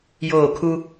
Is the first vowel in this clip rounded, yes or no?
yes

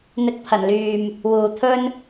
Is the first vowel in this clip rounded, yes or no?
no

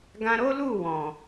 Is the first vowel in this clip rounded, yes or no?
no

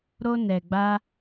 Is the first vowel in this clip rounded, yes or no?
yes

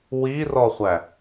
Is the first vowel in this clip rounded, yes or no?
no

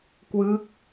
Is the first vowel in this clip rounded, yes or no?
no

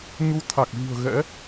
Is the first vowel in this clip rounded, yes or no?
yes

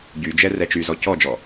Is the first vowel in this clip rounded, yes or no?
yes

